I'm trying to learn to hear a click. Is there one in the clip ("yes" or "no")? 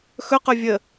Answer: no